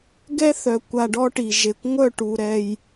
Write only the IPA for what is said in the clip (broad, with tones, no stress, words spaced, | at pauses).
ɡɛ˦θœ˨kʷa˨ ɖɔ˦ʈi˨ʒe˨kʷ ŋʷœ˦˨ʈu˨ ɾɛ˨j